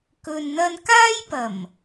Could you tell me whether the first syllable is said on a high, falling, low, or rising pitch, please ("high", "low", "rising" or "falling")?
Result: low